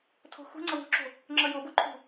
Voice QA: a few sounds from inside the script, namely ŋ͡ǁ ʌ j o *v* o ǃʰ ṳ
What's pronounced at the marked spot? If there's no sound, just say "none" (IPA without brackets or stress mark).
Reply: b